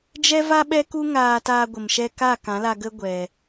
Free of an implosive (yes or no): no